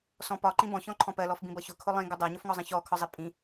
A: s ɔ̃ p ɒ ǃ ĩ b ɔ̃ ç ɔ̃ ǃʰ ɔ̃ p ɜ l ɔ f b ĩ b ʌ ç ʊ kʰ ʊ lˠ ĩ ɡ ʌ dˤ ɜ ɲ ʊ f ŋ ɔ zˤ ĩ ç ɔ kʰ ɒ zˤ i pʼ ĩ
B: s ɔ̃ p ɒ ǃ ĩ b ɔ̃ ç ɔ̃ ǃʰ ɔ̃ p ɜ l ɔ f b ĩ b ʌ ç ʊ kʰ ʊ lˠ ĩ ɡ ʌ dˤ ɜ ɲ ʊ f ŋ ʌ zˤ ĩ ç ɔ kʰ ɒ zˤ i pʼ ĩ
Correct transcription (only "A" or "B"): A